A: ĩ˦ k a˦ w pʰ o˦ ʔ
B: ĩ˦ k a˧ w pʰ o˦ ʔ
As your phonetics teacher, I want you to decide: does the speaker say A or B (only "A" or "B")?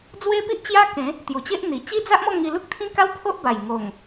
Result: A